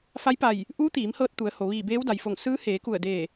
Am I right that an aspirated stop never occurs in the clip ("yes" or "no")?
yes